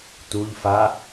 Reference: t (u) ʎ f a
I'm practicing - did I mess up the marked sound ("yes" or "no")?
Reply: no